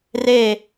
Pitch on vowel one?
falling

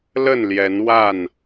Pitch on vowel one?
falling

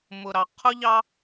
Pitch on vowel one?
low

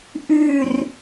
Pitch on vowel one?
falling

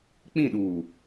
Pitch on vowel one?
falling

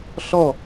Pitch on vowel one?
falling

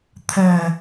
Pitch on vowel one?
low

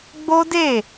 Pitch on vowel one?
high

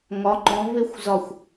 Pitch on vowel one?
rising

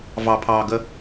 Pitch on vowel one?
low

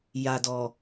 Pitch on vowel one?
low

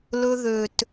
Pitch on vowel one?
high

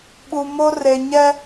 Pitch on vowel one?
low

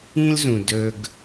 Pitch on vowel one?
high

